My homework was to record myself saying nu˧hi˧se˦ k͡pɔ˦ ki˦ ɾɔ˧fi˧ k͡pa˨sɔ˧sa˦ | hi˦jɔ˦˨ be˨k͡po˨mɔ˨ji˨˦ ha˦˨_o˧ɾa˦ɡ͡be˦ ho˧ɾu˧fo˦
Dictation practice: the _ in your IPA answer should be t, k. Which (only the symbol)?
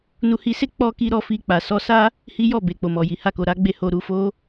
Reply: k